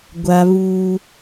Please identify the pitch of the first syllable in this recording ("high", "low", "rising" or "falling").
high